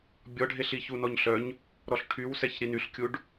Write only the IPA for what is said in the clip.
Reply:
bʲɔɖʱeɬi çunɔɲɬœɲ | ɾɔɬʈʰywsɛç ɾinyɬkʲuɖ

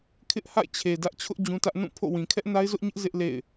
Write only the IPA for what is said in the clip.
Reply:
kʰɪ˦ʔha̰˦˨ɪ̯t͡ɕʰe˨ dä˦ʔt͡ɕʰʊ˦ʔ d͡ʑũ˦tä˦ʔ nũ˦˨ pʰo̰˦˨wĩ˨ kʰɛ˦ʔna˦ɪ̯zʊ˦ʔɲɪ˦ʔ zɪ˦ʔ lḛ˦˨ɪ̯

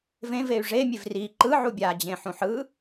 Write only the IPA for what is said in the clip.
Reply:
vẽvey̯ ʐemʲev ri ǃɯ ʕubʲad͡ʑẽ ħũħɯ

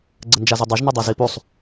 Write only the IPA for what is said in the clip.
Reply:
ɡ͡ǀənd͡ʒazudˤɐʒ nədˤizipusˤ

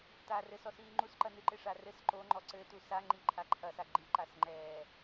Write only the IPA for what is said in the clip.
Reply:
taːrɘsɔsiː ŋ͡ǃusǃɐ nɨǃeʂa rɘs ǃo ŋ͡ǃɔǀɘ tusaŋ͡ǃi ǃʰaǃʰɐsa ɡ͡ǃiǃasŋ͡ǃɛː

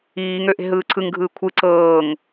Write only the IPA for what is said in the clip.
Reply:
iːŋø ʔe̤ɦɯːǀʰɯŋɡʱɯː kʷʰɯ ǀɤːŋ

